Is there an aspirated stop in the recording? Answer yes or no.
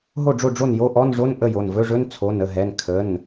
yes